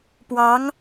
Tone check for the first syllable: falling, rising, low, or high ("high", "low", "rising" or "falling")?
rising